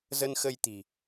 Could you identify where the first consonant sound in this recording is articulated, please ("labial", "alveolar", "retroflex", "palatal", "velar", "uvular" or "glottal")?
alveolar